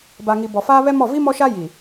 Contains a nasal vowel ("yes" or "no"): no